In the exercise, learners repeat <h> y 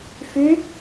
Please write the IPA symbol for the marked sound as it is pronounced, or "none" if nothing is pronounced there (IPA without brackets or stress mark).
f